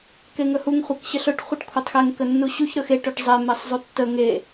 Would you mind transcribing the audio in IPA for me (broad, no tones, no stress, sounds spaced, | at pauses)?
k e ŋ ɵ h u ŋ χʷ ɛ k ɕ ə ɬ ɵ ʈ χʷ ɯ ʈ kʷʰ ɛ tˤ x ɛ ŋ k ə nː u ɕ u ç ɾ ɵ x e ʈ ɵ ʈ zˤ ɛ m ɛ sˤ zˤ u tː ə ŋ e